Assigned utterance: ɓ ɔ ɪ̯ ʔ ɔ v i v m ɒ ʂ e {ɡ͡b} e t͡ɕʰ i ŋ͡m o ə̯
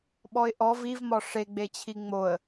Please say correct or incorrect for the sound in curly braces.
correct